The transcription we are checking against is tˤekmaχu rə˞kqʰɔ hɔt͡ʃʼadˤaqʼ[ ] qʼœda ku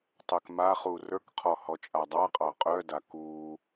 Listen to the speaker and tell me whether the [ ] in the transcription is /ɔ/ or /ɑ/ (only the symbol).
ɑ